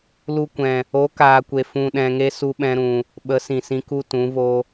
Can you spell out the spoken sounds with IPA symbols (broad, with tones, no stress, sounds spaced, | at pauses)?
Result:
l u˧ kʷ ɛ̃˨ | o˨˦ k aː˨ kʷ e˨ f ũ˧ ɗ ɛ̃˧ ŋ e˦ s u˦ ɓ ɛ̃˦ ɾ ũ˧ | ɓ ə˨˦ s ĩ˨ s ĩ˧ k u˦ t ũ˨˦ v o˦